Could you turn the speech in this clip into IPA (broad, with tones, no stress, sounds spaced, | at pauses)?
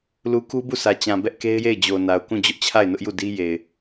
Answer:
l u˨ k u˦ b u˦˨ sʰ ä˨ t͡ɕ ã˨ b ɛ˦ ʔ k e˦ ɪ̯ j e˦˨ ɪ̯ d͡ʑ o˨ n a˨ ʊ̯ k ũ˦˨ d͡ʑ ʊ˦ ʔ t͡ɕʰ a˦˨ ɪ̯ n ʊ˦ ʔ j u˦˨ d i˦ j e˨ ɪ̯